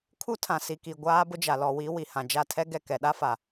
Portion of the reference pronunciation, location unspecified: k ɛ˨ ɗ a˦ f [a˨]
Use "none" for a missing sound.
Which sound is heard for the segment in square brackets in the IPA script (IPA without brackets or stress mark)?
a˨